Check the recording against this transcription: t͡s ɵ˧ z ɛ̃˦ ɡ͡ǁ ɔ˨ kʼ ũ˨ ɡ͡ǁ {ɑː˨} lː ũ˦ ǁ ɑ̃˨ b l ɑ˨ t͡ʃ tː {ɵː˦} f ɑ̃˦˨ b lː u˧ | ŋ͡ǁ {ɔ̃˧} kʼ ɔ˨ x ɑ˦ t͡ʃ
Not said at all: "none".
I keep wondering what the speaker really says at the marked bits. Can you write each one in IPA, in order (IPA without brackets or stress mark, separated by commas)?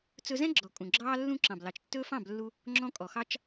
ɑː˦, ɵː˦, ɔ̃˧